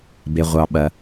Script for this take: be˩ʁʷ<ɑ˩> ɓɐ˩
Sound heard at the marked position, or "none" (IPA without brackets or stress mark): ɑ˩